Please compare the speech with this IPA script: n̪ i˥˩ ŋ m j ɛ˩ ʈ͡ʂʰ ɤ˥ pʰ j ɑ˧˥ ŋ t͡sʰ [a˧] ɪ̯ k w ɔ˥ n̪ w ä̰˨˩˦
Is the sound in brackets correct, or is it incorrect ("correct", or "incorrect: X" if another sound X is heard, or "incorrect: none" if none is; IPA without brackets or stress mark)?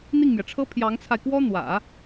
correct